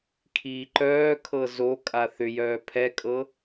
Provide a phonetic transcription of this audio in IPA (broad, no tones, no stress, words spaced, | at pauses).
kʰiːǃœːkʰɤ zo kʼaθʏjœː pʰɛkʼɤ